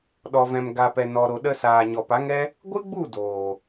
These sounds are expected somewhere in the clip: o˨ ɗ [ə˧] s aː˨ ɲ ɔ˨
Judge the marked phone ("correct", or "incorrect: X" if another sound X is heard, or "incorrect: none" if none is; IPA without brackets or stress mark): correct